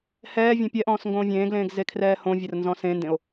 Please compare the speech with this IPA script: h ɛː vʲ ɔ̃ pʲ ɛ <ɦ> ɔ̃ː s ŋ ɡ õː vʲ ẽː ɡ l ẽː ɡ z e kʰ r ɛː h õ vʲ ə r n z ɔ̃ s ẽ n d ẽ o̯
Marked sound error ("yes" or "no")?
yes